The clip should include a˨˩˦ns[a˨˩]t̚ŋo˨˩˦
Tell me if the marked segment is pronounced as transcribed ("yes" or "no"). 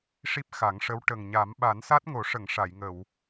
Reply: no